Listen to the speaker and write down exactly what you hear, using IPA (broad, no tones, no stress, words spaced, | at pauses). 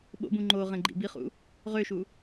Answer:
ɓo̰bũ ŋ͡ǃo ʁẽɡ͡ǃḭbiχṵ | ʁøʃu